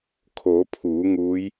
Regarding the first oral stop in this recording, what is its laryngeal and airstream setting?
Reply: aspirated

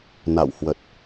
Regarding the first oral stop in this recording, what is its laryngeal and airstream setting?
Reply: plain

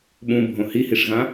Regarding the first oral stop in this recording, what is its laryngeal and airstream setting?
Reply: implosive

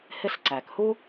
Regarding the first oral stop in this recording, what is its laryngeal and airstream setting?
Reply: click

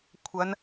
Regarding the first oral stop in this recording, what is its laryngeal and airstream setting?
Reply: aspirated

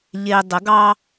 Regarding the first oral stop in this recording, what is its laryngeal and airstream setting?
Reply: plain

